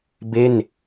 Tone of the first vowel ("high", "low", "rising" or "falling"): falling